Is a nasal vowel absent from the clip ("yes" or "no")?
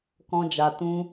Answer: no